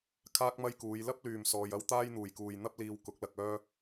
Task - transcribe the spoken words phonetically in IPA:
kʰ aː˥ k̚ m ɐ˥ j k uː˨˧ j l ɐ˥ p̚ l yː˨˩ m s ɔː˨ j ɐ˥ w t̪ aː˥ j n̪ uː˨˩ j k uː˨ j n̪ ɐ˥ p̚ l iː˧ w k ʊ˨˥ k̚ l ɐ˨ k̚ œː˥

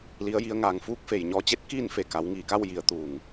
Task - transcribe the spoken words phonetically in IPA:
l i˩˧ ə̯ j i˩˧ ə̯ ŋ aː˩ ŋ f uː˧˥ k̚ f e˩ j ɲ ɔː˧˥ t͡ɕ e˧˥ t̚ k iː˥˨ n f e˧˩ k a˩˧ w ŋ iː˧˩ k a˥˨ w j i˩˧ ə̯ t̪ uː˩ ŋ

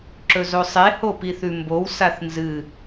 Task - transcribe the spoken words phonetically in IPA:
ǁ ɵ z o sˤ e h o p i θ ʉ m b o w s a θ n z ɨ

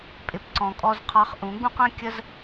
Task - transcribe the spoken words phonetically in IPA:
pʼ ɪ˨ p ǀ ɔ̃˨ kʼ ɔ˧ z qʰ ɑ˧ χ ʔ ũ˨˦ ɡ͡b ũ˦ q ə̃˦ kʲ ə˦ z

